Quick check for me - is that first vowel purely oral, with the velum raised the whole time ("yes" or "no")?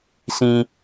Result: no